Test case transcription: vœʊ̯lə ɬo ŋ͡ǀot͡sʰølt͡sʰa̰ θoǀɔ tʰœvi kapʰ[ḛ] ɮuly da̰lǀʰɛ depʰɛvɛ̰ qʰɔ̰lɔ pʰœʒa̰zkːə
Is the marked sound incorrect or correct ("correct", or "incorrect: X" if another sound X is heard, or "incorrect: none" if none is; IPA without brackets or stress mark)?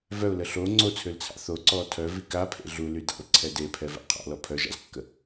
correct